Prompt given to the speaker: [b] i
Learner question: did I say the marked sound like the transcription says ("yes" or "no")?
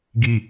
no